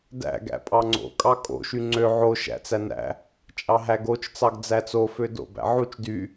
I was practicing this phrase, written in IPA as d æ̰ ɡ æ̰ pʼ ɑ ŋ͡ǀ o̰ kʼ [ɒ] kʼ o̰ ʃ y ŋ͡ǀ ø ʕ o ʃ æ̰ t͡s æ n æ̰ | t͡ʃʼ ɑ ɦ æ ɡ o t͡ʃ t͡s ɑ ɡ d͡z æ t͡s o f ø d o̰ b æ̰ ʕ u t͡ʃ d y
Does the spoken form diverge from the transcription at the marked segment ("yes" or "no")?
yes